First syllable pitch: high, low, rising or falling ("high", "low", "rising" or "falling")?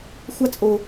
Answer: high